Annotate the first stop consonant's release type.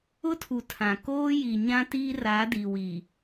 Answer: aspirated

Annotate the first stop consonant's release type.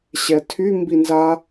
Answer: aspirated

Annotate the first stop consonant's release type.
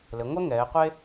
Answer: plain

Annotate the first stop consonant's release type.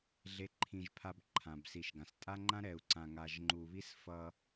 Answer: click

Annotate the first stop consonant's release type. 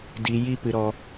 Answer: plain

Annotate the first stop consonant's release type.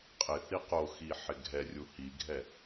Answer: ejective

